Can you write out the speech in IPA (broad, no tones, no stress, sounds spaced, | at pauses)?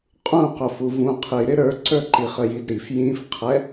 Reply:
qʼ ũ q ʊ f u v ũ qʰ i ɾ ɪ ɾ ə˞ ǀ ə˞ ǃ i χ ə j i d ɾ i f j ĩ f qʰ ɛ